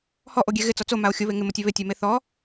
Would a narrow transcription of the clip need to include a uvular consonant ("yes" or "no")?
no